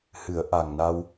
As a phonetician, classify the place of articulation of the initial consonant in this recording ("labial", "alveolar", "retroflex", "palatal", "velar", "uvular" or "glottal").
glottal